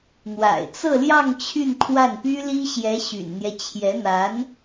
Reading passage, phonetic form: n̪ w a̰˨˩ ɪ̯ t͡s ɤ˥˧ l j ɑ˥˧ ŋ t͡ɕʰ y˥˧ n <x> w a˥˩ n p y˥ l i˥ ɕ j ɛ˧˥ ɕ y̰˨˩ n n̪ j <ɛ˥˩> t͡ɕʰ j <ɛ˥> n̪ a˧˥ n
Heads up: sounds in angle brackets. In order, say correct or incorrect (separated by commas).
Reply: incorrect, incorrect, incorrect